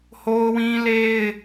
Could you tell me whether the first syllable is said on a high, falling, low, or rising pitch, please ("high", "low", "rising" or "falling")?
high